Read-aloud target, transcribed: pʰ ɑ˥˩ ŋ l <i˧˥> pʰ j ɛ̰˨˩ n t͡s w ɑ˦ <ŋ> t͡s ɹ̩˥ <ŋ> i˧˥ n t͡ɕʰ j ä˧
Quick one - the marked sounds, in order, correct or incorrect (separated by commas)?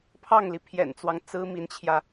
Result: incorrect, correct, incorrect